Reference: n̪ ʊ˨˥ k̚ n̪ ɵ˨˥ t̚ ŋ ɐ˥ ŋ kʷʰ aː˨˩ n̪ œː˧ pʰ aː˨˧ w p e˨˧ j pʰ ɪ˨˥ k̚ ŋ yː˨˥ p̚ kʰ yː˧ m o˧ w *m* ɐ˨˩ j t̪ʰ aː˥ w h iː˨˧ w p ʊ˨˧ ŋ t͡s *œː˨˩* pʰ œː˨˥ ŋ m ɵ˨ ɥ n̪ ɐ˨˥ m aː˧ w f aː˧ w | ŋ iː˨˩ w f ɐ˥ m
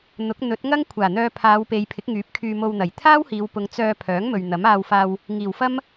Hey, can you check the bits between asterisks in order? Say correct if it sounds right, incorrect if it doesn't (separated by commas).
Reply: incorrect, incorrect